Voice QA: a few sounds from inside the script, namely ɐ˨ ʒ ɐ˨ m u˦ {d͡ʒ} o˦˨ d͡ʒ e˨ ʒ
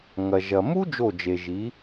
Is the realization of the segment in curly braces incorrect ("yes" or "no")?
no